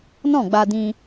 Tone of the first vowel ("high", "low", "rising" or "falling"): falling